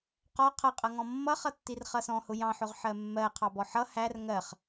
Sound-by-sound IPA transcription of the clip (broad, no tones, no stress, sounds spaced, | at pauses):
q ɔ qʰ ʌ qʼ ʌ ŋ ɔ̃ mː ʌ χ ʌ tː i r χ ʌ s ɔ̃ h ʊ j ɑ̃ ħ ʊ ʁ ħ ɜ mː ɜ qʰ ɑ b ɔ ħ ʌ h æ r ŋ ɜ χ